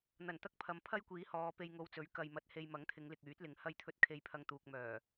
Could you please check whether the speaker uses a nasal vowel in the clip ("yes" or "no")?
no